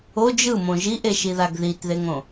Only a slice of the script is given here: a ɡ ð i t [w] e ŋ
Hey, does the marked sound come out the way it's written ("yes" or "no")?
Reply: no